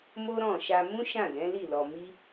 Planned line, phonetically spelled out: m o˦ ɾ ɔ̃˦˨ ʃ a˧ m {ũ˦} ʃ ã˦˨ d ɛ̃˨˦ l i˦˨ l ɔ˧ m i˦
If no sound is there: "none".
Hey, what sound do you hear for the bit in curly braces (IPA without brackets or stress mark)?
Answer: ũ˦